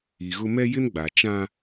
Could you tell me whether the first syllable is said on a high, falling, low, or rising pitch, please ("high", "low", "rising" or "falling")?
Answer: low